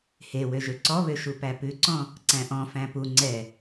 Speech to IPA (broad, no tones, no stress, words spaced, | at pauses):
he wøʒøǀɔβø ʃupæpʉǀɔ̃ | ǀæ̃ʔɔ̃fæ̃ pu ŋ͡ǀɛ